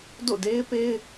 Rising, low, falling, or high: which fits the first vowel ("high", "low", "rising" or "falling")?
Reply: falling